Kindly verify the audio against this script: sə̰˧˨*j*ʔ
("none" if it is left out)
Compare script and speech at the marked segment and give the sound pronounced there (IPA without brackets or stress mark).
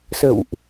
w